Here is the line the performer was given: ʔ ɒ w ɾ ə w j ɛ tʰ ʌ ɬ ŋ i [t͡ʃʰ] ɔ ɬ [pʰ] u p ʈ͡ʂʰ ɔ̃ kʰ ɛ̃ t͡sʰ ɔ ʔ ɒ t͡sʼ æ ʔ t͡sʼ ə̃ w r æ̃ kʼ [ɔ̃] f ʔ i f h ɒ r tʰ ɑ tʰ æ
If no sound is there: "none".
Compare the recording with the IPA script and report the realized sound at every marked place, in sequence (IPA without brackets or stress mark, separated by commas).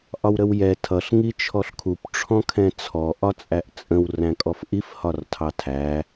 t͡ʃʰ, kʰ, ɔ